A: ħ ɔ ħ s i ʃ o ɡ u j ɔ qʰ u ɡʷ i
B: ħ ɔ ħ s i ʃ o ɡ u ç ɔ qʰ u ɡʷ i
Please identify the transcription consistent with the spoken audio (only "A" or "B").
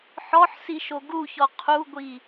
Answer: B